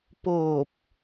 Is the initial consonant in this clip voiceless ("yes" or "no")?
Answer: yes